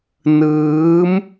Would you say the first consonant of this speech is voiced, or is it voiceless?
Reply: voiced